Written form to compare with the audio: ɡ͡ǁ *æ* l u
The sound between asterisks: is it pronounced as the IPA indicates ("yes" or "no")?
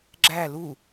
yes